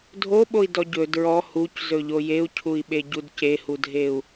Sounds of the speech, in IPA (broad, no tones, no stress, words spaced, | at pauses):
dʱoɓoi̯dɔ ɟɵ dɹɔ huczɵʎo jeu̯cʰui̯ɓeɟud cehudʱeu̯